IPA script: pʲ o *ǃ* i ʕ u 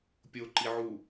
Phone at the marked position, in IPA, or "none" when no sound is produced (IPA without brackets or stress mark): ǃ